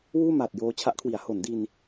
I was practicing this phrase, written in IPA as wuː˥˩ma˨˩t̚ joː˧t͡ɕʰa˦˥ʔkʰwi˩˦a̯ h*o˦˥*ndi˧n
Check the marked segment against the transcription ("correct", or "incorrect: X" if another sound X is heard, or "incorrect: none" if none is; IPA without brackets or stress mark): incorrect: o˩˦